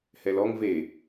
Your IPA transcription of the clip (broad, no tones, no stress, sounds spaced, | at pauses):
h ɛ l ɔ ŋ v e